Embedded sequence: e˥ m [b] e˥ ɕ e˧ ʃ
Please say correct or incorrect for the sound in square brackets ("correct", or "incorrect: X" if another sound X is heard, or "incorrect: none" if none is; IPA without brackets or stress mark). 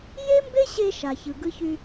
correct